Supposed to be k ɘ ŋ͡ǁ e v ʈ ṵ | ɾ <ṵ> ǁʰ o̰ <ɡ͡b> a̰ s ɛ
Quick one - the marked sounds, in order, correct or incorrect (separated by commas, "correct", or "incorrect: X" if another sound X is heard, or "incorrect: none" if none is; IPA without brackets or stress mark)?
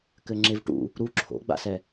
incorrect: u, correct